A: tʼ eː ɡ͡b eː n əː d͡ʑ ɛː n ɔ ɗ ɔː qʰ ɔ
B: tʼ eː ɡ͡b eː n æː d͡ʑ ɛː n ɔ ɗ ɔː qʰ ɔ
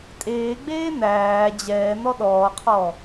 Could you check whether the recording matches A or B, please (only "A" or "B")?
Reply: B